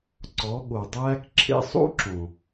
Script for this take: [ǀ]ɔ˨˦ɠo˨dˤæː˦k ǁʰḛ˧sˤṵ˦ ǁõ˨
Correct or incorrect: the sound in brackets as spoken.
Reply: correct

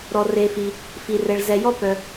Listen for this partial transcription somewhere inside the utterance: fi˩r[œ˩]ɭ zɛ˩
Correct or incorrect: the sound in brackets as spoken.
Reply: incorrect: ɛ˩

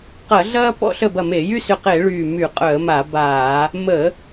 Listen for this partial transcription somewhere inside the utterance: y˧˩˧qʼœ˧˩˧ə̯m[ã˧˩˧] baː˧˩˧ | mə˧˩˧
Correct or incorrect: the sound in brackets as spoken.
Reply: incorrect: a˧˩˧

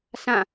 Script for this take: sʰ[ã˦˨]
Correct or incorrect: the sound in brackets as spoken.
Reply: correct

